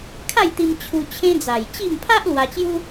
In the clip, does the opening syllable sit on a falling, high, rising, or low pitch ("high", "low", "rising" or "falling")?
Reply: falling